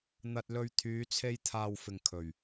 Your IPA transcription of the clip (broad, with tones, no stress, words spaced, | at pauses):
n̪ɐ˨t̚lɵ˨ɥ t̪ʰyː˨˧t͡sʰe˧j t̪ʰaː˨wfɪ˨˩ŋ kʰɵ˨˩ɥ